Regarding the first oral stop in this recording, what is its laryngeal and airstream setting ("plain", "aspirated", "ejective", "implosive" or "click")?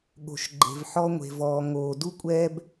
implosive